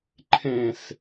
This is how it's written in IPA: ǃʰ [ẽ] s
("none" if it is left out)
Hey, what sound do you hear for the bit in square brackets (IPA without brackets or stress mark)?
ẽ